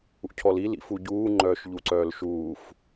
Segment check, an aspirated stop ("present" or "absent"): present